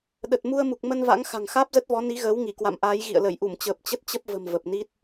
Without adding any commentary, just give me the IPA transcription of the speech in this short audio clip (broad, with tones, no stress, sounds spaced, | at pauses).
ɗ ə˨˩ t̚ m u˧ ə̯ m u˨˩ k̚ m ə˧ n v a̰˧˥ ŋ x a̤˨˩ ŋ x aː˦˥ p̚ z ə˦˥ t̚ v ɔ˨˦ n i˨˦ ɣ əː˨˦ w ŋ i˧˩ k w a̰˧˨ m ʔ aː˨˦ j ɣ ḭ˧˨ ə̯ l ə˧˩ j ʔ u˧˩ m t͡ɕ əː˨˩ p̚ t͡ɕ ə˦˥ t̚ t͡ɕ ə˦˥ p̚ v ə̤˨˩ m v ə˨˩ p̚ n i˦˥ t̚